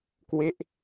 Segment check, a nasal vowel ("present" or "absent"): absent